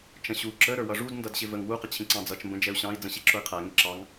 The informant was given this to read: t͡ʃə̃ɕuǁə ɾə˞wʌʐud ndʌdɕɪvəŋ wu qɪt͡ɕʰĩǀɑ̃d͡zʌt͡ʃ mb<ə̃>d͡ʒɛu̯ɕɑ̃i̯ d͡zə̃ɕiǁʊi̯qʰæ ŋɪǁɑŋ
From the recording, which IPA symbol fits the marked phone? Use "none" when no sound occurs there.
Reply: ə̃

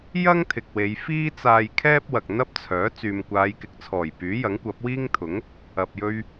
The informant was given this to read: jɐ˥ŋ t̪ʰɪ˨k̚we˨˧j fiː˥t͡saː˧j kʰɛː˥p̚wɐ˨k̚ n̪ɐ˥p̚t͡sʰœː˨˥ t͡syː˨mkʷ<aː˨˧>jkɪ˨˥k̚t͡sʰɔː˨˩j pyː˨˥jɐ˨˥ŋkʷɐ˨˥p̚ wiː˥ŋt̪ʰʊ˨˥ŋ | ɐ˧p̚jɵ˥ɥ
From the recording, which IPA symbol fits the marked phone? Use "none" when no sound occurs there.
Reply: aː˨˧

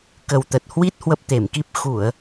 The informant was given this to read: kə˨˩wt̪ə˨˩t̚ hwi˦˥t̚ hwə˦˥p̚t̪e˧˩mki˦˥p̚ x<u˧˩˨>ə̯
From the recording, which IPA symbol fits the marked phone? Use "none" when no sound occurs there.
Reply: u˧˩˨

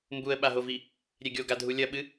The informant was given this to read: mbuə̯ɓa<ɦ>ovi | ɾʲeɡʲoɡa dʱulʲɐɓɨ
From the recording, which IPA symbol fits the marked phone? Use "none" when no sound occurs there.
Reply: ɦ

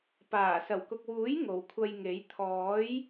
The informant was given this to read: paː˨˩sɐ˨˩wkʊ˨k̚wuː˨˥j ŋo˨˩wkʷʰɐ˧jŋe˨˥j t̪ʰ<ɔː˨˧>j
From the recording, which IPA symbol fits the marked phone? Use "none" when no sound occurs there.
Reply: ɔː˨˥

